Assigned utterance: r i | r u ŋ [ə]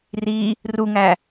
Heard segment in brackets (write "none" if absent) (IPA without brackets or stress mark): æ